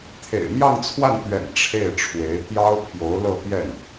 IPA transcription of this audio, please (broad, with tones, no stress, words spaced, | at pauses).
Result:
t̪ʰḛ˨˩ɪ̯mjɑ˥˧ŋt͡sʰwa˥˩nt̪ɥɛ̰˨˩n ʈ͡ʂʰe˥˩ɪ̯ʈ͡ʂʰwe˧˥ɪ̯ t̪jɑ˥ʊ̯pʰjo˧˥ʊ̯lɤ˥˧ t̪jɛ˥˩n